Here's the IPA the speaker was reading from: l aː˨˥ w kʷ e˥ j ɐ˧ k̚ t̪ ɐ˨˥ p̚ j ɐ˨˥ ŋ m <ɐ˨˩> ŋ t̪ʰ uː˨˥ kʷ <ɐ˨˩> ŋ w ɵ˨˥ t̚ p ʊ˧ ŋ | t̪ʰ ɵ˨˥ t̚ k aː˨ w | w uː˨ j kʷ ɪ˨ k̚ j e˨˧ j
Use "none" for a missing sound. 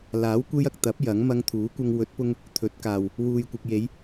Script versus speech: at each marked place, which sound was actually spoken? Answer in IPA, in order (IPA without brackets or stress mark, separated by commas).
ɐ˧, ɐ˧